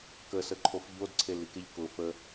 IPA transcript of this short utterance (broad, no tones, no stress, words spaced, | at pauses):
kəsəǃʰof ʎodǀʰelik eʎkʊ fə